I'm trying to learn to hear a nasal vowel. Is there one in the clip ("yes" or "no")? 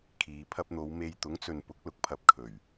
no